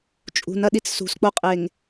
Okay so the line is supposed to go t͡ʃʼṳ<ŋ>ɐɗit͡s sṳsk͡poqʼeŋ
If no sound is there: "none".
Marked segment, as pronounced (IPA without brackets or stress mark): n